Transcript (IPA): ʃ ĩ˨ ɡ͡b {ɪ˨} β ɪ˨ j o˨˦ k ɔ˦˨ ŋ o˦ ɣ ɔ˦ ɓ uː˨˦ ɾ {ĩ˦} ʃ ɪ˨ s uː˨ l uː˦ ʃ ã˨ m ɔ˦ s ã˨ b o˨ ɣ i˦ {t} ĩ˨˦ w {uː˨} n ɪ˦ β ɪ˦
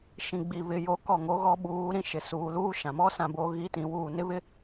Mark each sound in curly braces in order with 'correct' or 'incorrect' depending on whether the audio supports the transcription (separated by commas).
incorrect, correct, correct, incorrect